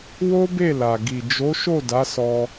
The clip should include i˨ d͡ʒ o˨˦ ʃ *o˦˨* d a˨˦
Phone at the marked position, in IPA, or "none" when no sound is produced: o˦˨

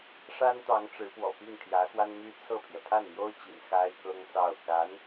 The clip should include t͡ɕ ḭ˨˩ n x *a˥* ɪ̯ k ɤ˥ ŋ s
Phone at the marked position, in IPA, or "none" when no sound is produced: a˥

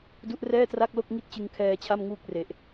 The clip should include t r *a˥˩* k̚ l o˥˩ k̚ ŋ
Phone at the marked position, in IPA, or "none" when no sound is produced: a˥˩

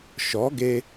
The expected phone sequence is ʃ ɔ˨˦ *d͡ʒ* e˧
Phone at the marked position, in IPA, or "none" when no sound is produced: ɡ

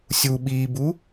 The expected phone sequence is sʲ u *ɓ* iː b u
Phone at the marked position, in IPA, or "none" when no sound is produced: ɓ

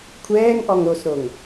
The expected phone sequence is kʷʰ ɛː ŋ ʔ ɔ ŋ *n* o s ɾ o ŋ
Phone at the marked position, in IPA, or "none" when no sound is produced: ɾ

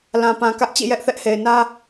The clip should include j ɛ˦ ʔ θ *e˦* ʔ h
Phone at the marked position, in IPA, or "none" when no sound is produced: ɛ˦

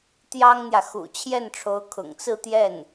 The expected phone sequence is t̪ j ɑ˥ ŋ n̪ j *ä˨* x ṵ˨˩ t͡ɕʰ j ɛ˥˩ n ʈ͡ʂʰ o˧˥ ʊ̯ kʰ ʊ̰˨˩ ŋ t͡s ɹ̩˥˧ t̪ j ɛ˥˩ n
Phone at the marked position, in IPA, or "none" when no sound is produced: ä˨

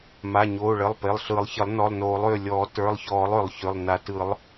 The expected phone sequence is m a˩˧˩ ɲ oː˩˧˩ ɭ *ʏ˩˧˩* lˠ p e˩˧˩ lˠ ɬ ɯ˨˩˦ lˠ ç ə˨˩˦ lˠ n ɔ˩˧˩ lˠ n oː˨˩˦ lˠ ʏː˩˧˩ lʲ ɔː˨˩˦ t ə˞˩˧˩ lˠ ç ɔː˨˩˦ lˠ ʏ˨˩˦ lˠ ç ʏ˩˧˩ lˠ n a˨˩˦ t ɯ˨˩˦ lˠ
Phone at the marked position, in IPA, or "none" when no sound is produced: ə˩˧˩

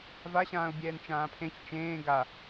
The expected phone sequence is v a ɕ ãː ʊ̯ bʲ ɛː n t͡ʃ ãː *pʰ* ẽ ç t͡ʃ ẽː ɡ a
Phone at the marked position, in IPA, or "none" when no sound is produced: pʰ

